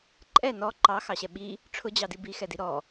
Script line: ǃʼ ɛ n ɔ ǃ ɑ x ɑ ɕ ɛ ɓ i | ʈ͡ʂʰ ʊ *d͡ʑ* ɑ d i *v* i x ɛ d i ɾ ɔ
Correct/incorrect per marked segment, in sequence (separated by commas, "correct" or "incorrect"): correct, incorrect